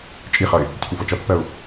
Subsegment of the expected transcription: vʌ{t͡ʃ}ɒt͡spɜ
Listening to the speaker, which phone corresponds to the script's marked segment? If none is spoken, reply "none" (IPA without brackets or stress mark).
t͡ʃ